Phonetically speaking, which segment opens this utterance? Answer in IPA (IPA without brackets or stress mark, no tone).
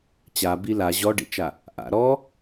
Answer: t͡ɕ